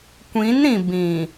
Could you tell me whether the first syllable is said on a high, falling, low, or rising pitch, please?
rising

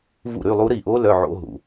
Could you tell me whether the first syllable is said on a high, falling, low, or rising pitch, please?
falling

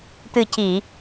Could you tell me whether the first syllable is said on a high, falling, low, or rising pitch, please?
low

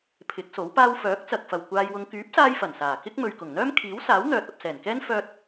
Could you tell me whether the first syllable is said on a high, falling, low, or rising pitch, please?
rising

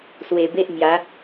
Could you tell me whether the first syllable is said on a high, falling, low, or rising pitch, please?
low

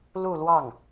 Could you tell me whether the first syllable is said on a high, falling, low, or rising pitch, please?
falling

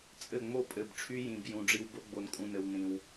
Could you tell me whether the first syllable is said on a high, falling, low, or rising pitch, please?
falling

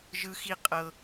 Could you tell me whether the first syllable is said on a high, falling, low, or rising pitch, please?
high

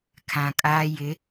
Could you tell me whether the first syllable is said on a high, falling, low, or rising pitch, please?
low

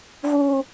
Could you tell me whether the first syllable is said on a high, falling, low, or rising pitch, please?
low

